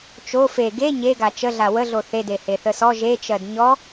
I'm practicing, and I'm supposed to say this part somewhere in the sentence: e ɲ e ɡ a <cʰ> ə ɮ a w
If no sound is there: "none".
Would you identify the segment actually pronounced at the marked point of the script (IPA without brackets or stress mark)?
t͡ʃ